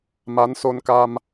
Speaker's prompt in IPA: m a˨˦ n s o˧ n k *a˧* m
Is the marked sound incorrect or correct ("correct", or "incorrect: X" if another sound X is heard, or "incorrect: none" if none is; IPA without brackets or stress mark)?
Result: correct